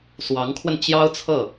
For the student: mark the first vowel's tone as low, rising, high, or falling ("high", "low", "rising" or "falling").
rising